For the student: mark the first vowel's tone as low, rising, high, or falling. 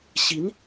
rising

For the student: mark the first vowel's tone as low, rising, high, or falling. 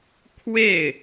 falling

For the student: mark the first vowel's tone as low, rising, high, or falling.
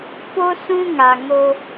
high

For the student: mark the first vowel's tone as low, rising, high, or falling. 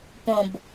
low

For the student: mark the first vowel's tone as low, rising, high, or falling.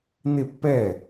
falling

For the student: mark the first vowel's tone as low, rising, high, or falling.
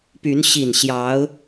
rising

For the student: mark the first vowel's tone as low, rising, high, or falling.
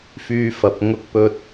high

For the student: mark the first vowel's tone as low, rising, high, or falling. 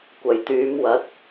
low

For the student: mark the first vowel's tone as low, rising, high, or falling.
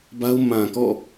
high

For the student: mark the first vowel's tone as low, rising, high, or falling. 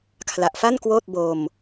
low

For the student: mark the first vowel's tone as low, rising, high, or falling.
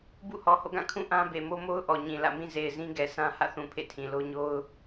falling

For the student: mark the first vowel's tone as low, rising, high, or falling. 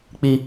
high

